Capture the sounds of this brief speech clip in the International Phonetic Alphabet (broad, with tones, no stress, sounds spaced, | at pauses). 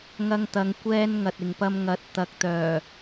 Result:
ŋ ɐ˧ ŋ t̪ ɐ˨˧ ŋ kʷ ɛː˧ n ŋ ɐ˨ t̚ ɪ˨ ŋ p ɐ˧ m ŋ ɐ˨ t̚ t̪ ɐ˨ k̚ t̪ œː˨˩